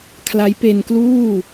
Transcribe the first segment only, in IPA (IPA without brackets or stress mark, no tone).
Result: kʰ